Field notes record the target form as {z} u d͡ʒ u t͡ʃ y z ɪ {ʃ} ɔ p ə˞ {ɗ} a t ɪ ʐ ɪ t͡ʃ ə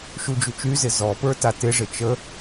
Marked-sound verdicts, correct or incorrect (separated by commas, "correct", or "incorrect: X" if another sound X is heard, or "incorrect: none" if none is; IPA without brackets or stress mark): incorrect: ʃ, incorrect: z, incorrect: t